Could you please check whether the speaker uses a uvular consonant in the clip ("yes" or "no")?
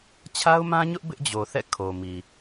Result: no